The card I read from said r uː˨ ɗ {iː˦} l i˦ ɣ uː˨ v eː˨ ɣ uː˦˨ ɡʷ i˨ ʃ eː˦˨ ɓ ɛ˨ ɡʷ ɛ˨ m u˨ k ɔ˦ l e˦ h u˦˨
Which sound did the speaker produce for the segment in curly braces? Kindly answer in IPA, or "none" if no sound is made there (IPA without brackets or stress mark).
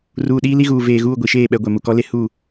iː˦